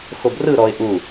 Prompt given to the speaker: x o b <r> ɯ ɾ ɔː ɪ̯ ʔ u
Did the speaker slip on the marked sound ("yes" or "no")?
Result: no